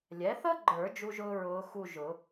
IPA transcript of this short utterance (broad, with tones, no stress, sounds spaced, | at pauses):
lʲ ɛ˩˥ θ ʌ˥ ɡ͡ǃ ə˞˨˩˦ d͡ʒ u˥ ʒ ʊː˥ ɹ ʊː˧˥ x u˥˧ ʒ ʊ˨˩˦